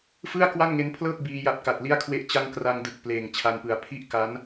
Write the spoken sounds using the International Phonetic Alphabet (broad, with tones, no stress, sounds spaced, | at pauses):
f ɯ˥˩ a̯ k w a˥˩ n ŋ e˦˥ n pʰ l ɤː˥˩ k̚ b iː˧ j a˦˥ p̚ k a˨˩ t̚ l i˥˩ a̯ kʰ w e˥˩ ʔ t͡ɕ a˥˩ ŋ k r a˧ ŋ d ɯ˨˩ k̚ p l eː˨˩ ŋ t͡ɕʰ a˧ n p ɯ˨˩ a̯ pʰ i˥˩ ʔ k a˦˥ n